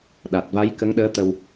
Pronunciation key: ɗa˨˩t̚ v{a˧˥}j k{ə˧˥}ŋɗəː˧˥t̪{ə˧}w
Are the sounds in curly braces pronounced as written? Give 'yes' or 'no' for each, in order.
yes, yes, yes

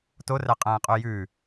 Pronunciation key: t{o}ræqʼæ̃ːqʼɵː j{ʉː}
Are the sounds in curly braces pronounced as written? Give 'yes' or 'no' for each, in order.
yes, yes

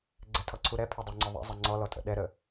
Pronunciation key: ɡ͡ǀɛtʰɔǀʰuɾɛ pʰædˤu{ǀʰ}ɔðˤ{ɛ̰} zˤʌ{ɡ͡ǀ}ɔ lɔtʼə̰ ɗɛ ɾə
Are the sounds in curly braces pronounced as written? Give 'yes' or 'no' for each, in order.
no, yes, no

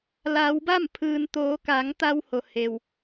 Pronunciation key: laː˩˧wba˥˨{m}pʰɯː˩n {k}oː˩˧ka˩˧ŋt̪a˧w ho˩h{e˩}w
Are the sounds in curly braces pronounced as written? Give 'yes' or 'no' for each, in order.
yes, no, yes

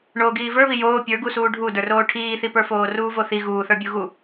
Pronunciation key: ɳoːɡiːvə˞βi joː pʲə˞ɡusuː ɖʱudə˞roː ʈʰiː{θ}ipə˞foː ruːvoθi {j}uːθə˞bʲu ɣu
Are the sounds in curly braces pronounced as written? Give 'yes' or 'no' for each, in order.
yes, no

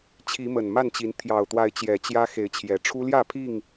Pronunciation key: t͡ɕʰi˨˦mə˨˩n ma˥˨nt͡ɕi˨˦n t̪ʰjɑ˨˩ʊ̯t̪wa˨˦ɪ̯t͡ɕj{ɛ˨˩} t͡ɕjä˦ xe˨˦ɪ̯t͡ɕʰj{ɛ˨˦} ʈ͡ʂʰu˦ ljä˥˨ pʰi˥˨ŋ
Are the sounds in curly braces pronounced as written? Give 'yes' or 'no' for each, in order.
yes, no

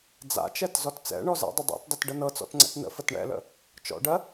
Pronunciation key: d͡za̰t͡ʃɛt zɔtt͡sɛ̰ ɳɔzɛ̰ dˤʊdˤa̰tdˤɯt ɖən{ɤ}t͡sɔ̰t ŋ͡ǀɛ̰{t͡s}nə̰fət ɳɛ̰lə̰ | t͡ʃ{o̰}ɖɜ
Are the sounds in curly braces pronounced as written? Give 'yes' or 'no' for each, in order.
yes, no, no

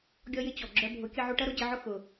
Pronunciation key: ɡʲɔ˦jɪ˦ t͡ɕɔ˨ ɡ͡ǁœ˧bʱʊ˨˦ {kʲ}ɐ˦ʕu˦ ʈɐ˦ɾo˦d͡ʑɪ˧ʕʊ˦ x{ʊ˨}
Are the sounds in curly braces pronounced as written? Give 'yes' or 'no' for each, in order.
yes, yes

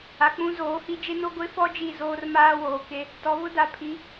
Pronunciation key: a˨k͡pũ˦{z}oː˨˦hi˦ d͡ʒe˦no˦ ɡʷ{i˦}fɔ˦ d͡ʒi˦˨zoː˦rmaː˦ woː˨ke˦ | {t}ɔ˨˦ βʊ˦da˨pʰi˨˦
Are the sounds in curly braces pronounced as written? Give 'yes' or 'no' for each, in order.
yes, no, yes

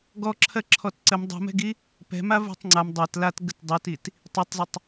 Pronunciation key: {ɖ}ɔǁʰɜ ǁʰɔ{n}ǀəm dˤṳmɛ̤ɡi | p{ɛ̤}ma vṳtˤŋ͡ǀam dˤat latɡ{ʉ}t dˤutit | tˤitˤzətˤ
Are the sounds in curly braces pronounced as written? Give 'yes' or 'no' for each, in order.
no, no, yes, no

